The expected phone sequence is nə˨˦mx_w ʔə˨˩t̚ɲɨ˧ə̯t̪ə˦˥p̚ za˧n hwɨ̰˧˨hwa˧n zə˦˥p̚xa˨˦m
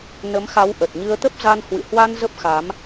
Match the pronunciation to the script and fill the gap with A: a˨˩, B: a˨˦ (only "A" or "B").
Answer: B